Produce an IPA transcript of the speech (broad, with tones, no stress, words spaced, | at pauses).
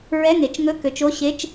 ɹɛ˧˥˧ŋe˩˧t͡ʃŋɵ˧˥˧ kø˩˧t͡ʃo˧˥˧ ɕe˧˥˧t͡ʃ